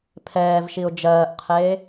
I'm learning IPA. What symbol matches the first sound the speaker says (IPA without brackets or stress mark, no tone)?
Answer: pʰ